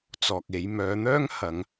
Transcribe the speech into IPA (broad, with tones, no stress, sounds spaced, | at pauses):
t͡s ɔː˨ k̚ e˨˧ j m œː˨˧ n̪ œː˥ ŋ h ɐ˨˧ ŋ